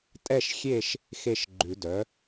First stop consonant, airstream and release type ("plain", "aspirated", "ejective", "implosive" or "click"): ejective